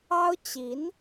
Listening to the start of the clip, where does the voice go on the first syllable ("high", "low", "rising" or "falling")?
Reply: high